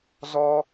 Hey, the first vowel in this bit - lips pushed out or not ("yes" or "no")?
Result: yes